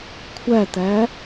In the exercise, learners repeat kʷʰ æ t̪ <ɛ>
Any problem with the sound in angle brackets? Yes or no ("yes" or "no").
yes